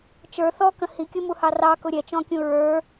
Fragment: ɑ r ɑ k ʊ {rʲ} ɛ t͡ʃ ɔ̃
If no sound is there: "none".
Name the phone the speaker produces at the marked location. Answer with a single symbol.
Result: ɾʲ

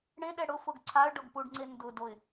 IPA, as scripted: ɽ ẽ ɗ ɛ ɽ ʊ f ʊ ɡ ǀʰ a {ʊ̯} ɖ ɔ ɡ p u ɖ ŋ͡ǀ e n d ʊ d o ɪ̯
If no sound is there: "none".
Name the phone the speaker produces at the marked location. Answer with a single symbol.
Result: ə̯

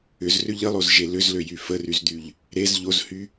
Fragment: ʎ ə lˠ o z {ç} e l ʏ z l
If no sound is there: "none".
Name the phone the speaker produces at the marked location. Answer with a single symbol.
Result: ʒ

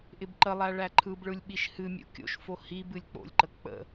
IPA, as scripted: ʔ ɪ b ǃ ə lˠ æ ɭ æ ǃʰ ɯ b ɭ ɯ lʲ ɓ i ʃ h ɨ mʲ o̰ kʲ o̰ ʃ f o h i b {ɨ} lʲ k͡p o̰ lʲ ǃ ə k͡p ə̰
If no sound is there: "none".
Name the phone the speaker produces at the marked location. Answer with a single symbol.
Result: ɨ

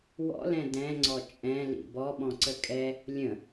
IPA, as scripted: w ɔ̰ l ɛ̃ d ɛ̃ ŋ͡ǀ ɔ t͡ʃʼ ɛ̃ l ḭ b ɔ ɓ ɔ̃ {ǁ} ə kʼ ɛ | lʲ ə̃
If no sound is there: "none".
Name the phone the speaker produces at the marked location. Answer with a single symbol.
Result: ǀ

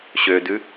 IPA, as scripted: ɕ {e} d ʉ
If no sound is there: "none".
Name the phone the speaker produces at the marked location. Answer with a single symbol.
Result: ø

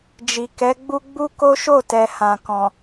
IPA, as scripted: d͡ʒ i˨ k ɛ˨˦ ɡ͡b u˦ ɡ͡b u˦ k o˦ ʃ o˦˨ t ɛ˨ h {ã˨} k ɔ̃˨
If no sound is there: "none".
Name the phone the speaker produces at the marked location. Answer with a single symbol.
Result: ã˨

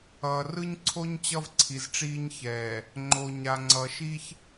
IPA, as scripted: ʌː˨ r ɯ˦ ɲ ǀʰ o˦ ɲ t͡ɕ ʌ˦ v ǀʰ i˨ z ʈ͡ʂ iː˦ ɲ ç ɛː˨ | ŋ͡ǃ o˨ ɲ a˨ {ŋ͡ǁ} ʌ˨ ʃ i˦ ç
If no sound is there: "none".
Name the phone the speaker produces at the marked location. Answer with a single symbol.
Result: ŋ͡ǀ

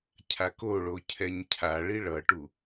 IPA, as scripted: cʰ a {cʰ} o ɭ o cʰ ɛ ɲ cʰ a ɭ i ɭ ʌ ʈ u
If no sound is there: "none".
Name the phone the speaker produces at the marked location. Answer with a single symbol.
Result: k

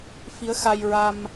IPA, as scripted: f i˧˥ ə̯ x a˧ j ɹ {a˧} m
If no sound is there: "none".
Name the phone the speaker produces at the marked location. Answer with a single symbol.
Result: a˧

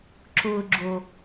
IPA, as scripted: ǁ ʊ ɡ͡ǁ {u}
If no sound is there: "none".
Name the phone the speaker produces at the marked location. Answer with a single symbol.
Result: o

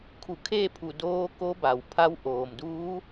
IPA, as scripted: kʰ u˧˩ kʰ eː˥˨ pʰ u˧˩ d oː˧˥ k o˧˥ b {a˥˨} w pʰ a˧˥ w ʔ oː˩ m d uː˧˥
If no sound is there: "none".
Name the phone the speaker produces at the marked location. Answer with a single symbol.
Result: a˩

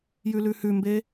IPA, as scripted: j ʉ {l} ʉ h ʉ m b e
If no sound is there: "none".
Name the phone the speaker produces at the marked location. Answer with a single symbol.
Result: l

